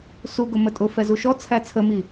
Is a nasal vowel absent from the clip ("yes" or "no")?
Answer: yes